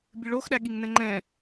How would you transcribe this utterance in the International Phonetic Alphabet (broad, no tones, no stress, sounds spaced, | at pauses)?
bʲ ɨ ɭ o x ɗ æ ɠ i ŋ n ɛ̃ ŋ͡ǃ ɛ̃